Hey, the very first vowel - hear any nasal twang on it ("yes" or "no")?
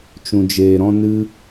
yes